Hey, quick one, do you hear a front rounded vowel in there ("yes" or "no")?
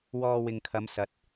no